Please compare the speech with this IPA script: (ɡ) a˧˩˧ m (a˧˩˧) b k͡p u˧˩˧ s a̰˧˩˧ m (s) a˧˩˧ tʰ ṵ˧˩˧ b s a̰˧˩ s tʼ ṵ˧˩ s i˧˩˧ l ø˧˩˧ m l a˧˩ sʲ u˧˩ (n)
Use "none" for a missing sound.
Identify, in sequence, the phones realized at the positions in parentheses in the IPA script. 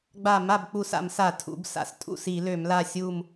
ɡ͡b, a˧˩, s, m

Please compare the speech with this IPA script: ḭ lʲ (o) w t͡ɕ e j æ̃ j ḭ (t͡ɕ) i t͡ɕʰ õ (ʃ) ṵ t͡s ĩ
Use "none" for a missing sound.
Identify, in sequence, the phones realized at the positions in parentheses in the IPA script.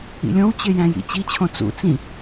õ, t͡ɕ, t͡s

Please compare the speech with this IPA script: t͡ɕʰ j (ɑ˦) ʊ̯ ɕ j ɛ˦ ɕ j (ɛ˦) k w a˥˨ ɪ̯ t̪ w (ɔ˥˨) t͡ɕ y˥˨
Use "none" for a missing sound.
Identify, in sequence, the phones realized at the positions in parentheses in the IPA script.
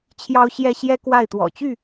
ɑ˦, ɛ˦, ɔ̰˨˩

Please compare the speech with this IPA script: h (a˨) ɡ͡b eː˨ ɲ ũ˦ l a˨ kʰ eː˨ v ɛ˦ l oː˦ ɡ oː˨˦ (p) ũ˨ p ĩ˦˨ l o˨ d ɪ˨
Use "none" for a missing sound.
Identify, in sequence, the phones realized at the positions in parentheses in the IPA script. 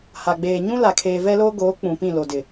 a˨, k͡p

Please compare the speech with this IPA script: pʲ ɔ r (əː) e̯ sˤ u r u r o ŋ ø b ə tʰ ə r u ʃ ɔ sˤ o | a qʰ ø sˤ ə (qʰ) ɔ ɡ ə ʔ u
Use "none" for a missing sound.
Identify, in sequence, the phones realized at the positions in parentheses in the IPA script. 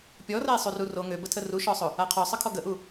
ə, kʰ

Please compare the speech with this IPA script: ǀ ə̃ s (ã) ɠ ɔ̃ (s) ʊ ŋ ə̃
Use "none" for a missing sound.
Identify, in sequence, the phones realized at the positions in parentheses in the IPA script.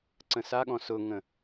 a, s

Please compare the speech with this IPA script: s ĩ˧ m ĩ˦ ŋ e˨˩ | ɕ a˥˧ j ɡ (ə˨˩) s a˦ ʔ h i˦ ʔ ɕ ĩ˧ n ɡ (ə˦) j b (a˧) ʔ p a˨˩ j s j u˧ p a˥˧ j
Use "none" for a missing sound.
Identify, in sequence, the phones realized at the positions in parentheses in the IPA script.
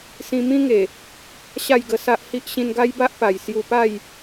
ə˧, a˦, a˦

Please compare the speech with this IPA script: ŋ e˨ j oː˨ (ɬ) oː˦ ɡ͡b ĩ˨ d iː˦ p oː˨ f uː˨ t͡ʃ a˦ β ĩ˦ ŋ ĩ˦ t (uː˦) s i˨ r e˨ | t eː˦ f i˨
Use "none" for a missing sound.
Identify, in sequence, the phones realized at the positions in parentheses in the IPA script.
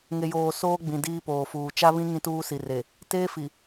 s, uː˦

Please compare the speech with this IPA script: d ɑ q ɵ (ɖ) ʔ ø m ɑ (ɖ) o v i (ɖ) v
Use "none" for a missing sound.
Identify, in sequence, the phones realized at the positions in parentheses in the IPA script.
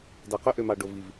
none, ɖ, none

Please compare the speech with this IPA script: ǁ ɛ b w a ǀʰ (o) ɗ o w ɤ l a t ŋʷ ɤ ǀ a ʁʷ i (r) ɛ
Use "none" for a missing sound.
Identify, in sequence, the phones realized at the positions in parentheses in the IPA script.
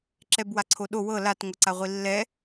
o, lː

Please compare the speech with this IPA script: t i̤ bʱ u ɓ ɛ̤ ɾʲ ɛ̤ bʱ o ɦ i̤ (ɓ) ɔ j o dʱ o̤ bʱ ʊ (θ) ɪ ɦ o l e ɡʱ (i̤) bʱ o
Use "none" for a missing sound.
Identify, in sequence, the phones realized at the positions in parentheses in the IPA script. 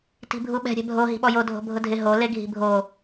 ɓ, dʱ, i̤

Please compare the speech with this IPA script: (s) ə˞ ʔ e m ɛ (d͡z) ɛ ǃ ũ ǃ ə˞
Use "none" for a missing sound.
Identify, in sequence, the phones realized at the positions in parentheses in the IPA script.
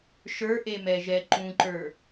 ʃ, ʒ

